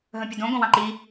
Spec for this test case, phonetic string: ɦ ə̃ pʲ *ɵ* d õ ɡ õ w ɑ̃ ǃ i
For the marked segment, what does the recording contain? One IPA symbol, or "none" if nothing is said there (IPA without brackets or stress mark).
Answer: ə